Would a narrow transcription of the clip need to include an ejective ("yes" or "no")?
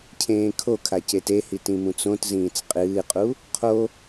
yes